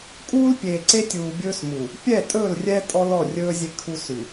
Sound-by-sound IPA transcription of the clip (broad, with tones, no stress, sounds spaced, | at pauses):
kʼ uː˦ l pʲ eː˨ ǀ e˦ tʲ uː˨ bʲ ɵː˦ s m u˨ | pʲ ɛ˦˨ tʼ ɵː˦˨ l rʲ ɛ˦ tʼ ɔ˦ l ɔ˦˨ rʲ ɵː˦ zʲ e˦ kʰ u˦ s ʉ˨